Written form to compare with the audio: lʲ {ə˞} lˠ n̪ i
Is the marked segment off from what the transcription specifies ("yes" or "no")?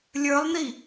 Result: no